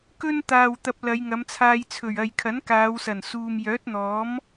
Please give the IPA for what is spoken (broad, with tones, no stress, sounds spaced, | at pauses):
k ɵ˥ n t̪ aː˨ w t̪ ɐ˧ p̚ l ɐ˨˧ j ŋ ɐ˨˧ m t͡sʰ aː˧ j t͡sʰ ɵ˨˩ ɥ ɐ˨ j kʰ ɐ˨˥ n k aː˨˧ w s ɐ˨˩ n s uː˨ m j œː˨˥ t̚ n̪ ɔː˨˥ m